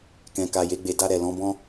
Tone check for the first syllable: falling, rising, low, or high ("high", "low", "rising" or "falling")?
low